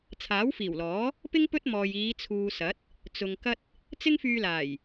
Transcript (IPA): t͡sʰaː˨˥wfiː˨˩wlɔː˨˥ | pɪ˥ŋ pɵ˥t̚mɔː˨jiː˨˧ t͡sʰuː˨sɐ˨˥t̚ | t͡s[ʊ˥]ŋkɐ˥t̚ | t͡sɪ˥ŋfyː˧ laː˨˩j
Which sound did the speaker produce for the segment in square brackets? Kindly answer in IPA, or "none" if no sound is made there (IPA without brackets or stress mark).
ʊ˨